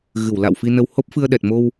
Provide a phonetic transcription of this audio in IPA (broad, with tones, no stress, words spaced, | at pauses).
ɣɨ˧˩wla̰˧˨w fi˧nə˧w ho˦˥p̚fɨ˧ə̯ɗɛ˨˩t̚mo˧w